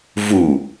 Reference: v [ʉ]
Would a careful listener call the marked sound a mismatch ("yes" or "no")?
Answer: yes